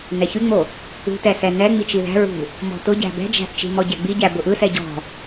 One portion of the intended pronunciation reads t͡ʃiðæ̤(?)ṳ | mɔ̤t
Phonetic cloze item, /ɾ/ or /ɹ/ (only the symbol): ɹ